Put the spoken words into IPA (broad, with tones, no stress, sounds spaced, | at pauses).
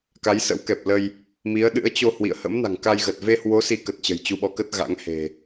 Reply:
k a˨˦ j s ə̰˧˥ w k ɛ˨˩ p̚ l ə˧ j | m i˨˦ ə̯ ɗ ɨ̰˧˥ ə̯ t͡ɕ o˧ h w ḭ˧˨ ə̯ h ə̰˧˥ m n a̤˨˩ ŋ k a˧ j ɣ ə˨˩ t̚ v e˧ h w o˨˦ s i˨˦ k ə˨˩ t̚ t͡ɕ ə̤˨˩ j t͡ɕ u˧ ɓ ɔ˨˦ k ə˦˥ t̚ ɣ a̰˧˥ ŋ h e̤˨˩